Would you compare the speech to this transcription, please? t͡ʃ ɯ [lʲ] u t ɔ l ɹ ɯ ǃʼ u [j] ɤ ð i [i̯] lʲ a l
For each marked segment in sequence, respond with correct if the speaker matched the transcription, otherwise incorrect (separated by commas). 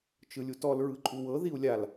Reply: correct, incorrect, incorrect